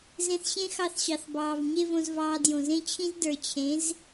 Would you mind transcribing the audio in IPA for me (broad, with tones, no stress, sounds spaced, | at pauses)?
z ẽ˧ θ ɕ ẽ˦ x ɑ˧ θ ɕ ɑ˨ θ b ɑː˨ v ɲ e˦ v õ˧ z v ɑː˧ d j õ˨ z ẽ˦ t͡ɕʰ ĩ˦ z d ə˞˨ t͡ɕʰ ẽ˨˦ z